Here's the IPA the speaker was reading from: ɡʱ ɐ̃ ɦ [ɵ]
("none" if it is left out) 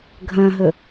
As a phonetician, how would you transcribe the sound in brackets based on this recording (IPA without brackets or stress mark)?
ɵ